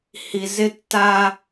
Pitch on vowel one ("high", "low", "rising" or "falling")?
low